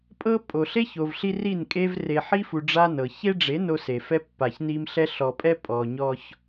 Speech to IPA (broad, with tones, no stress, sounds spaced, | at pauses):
pʼ ɤ˦ pʼ o˨ ɬ e˦ ç o˨ v ɬ i˦ r i˦˨ n kʼ e˦ v r e˨ ħ i˦ f u˨ ɖ͡ʐ a˦ n ɤ˨ ç e˦ ɖ͡ʐ e˨˦ n o˦ s e˨ f ɛ˦ pː a˨ ç n i˦ m ɬ ɛ˦ ɬ ɔ˨ pʼ ɛ˦ pʼ ɔ˨ ɲ ɔ˦ ç